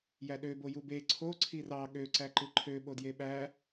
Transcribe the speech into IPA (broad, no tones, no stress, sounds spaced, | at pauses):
j æ ɗ ø b o j u b e ǀʰ o ǀʰ i r ɑ ɠ ø ǀ æ ǃ ɯ ǃʰ ø ɓ o d j e ɓ æ